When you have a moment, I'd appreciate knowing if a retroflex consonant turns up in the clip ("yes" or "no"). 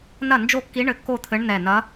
yes